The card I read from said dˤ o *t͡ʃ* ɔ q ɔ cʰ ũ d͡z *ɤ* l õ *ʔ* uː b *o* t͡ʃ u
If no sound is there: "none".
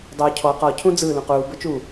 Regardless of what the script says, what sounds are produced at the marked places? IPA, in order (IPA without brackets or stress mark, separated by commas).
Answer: cʰ, ɯ, q, ɤ